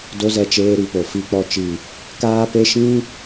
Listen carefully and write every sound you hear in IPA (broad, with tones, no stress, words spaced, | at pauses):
do˧zɛ˧ t͡ʃeː˧ɾi˨po˨ fi˨k͡pɔ˨t͡ʃi˨ | kaː˦pe˦ ʃĩ˦